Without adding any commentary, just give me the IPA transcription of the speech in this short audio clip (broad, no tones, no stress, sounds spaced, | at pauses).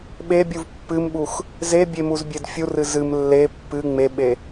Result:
ɓ e bʲ u v pː ɨ m ɓ u x | z e bʲ e m u z bʲ e d fʲ u r ɨ z ɨ m lː e pː ɨ ŋ͡m e ɓ e